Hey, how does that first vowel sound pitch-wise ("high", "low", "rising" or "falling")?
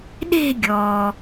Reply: falling